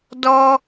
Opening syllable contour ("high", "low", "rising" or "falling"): high